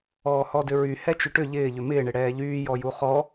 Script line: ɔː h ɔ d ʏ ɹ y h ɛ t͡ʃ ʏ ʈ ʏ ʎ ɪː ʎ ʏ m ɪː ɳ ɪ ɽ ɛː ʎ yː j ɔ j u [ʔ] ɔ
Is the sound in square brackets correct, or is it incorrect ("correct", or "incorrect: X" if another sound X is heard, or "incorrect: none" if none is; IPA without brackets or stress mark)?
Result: incorrect: χ